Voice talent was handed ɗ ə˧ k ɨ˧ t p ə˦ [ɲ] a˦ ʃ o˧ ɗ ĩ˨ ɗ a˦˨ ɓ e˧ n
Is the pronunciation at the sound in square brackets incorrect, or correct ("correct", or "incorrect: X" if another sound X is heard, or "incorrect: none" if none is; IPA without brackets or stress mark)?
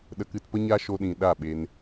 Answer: correct